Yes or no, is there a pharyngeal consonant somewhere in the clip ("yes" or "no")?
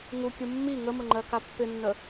no